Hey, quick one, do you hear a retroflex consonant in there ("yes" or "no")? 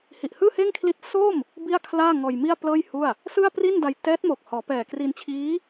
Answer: no